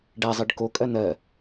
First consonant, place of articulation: retroflex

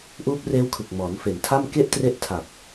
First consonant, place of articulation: glottal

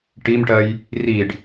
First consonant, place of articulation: retroflex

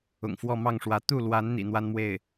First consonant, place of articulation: velar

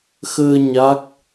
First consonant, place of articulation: velar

